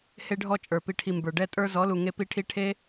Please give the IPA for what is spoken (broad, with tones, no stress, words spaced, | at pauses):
he˧ɖʱɔ˧t͡ʃʼə˞˨ pi˨ʈʰi˨ mbə˞˨ ɖɛ˧tʼə˞˧ zɔ˨˦lu˨ ŋe˧pi˧ʈʰi˧ ʈʰe˦